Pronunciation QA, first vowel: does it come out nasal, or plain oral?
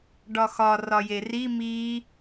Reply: oral